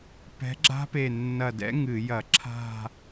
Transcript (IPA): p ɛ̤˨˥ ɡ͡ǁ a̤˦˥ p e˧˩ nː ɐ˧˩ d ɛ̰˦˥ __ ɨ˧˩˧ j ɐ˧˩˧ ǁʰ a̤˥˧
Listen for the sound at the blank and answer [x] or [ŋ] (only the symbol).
ŋ